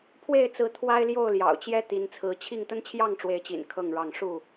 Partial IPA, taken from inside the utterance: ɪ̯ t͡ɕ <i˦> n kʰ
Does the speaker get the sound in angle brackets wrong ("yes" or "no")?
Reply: yes